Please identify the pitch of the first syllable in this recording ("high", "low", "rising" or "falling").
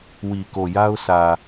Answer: low